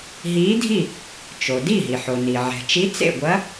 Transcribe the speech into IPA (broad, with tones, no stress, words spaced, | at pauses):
ɦiː˧˥dʱi˥˨ | t͡ʃo˩ di˥˨ɦi˩ħo˩ni˩ ʕɛ̤˩t͡ʃi˧˥ t͡sḛ˥˨ɡʷɐ˧˥